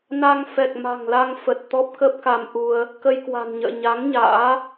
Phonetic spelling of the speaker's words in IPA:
n a˧ ŋ f ɛ˨˩ k̚ m a̤˨˩ ŋ l a˧ ŋ f ə˨˩ t̚ t̪ ɔ˦˥ p̚ k ə˦˥ p̚ k a˧ m ʔ u˧ ə̯ | k ə˧ j k w a̤˨˩ n ɲ ə̰ː˧˨ ɲ a˨˦ ŋ ɲ a̰ː˧˥

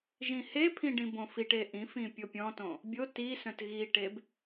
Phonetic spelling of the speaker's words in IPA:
ʒ ĩ h e pʰ ĩ ɖ ĩ b õ f i ʈ e ʔ ĩ f ĩ pʲ o pʲ ɔ̃ t õ | bʲ o t i s œ̃ t ɣ i ʈ e b

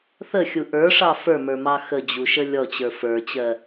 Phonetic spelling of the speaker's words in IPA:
θ ə xʲ u ʔ ə˞ ʂ ɑ f ə˞ m ə˞ m ɑ x ə d͡ʑ u ʃ ə lʲ ɔ t͡ɕ ə˞ f ə˞ t͡ɕ ɜ

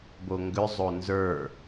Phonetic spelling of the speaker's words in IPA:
b o ŋ ɡ ʏ zˤ o n z ə˞

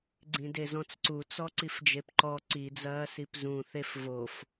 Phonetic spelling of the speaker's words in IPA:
ɡ͡ǀ ĩ d e z ɔ̃ t͡s ǀ u t͡s ɔ ǀ i f d͡ʒ e p ǃ ɔ ǀ i d͡z ɐː s i p z ũ θ e f v o f

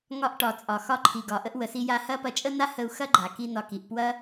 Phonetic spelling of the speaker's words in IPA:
ŋ ɒ˧ ʔ ʈ ɒ˨ t͡sʼ ɒ˨ x ɒ˧ ǃʰ i˨ ɡ ɒ˨ ʔ ə˧ ʔ w ə˨ s i˧ j a˧ h ɐ˧ p ɐ˧ t͡ʃʼ ə˦ n a˦ h ə˧ u̯ x ɐ˦ ɡ͡ǃ a˨ k i˧ n ɒ˨ k i˨ ʔ p w ɐ˦

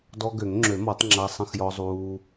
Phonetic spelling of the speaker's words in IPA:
d ɔ˧ ɡ ø˨˩˦ ŋ ŋ͡ǁ ø˨˩˦ m ɔ˨˩˦ tˤ ŋ͡ǁ a˧ sˤ ə̃˧ x j ɔ˧ zˤ uː˧

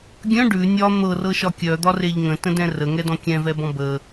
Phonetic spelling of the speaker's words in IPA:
ɡʲ œ̃ ɖ ʉ nʲ ɒ n̪ ɤ r ɤ ʃ ɒ kʲ œ d̪ ɒ r e ʎ ŋ ə̃ t ə̃ d ɛ̃ r ə ŋ ɛ d ɔ̃ kʲ ɛ̃ v ɛ b ɔ̃ b ə

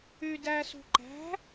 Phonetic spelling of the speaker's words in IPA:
y d æ s ṳ ǃ æ̤

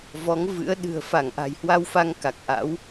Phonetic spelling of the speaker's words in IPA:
v ɔ˨˦ ŋ v ɨ̰˧˥ ə̯ ɗ ɨ̤˨˩ ə̯ f a˧˩ ŋ ʔ a̤˨˩ j h w a˧ w f a˧ ŋ k a˨˩ k̚ ʔ a̰˧˥ w

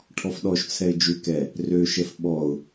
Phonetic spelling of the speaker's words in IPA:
ʈʰ ɔ f ɗ ɔ ʃ t͡sʰ ɛ ɪ̯ d͡ʒ ʉ k ɛ | r ø ʃ ɛ f ɓ ɔ ʊ̯

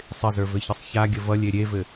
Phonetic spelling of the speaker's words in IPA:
sˤ ɪ z ə˞ v ɘ ç ə sˤ ç a ɡʲ ə v ʌ lʲ e ɾʲ e v ɘ

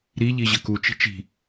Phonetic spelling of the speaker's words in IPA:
ɾ i ʎ i ʑ ə k u t͡ʃ i̤ t͡ʃ i̤

